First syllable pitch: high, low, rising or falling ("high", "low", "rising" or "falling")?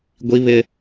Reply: high